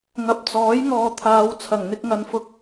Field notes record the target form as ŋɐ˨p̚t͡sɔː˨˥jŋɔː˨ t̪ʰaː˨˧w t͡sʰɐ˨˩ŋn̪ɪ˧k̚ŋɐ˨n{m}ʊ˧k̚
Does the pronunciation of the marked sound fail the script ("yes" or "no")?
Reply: yes